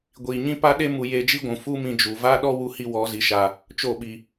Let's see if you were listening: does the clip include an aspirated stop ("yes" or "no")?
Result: no